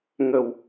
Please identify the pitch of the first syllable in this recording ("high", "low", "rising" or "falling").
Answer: low